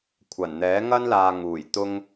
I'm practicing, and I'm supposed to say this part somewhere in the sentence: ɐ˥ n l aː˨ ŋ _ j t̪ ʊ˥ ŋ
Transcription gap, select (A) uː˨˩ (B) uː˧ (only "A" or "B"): A